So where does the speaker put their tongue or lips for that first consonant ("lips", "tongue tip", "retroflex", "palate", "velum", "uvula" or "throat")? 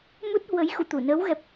lips